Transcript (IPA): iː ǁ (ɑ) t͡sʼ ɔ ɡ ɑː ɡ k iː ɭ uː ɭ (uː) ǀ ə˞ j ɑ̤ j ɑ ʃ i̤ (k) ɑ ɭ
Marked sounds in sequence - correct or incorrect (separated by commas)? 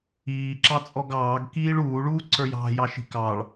correct, correct, correct